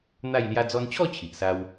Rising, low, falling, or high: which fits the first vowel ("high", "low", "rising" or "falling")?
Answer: falling